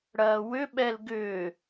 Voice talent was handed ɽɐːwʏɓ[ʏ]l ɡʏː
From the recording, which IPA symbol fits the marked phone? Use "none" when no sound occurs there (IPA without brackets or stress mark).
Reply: ɛ